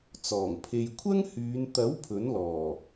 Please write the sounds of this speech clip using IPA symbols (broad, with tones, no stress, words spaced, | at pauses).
t͡sɔː˨˩ŋpʰe˧j kʷʰɐ˥ŋhyː˨˧n t̪ɐ˨˥w pʰɵ˨˥nlɔː˨˩